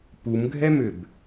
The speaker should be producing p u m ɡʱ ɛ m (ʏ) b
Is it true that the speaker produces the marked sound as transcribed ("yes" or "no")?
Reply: yes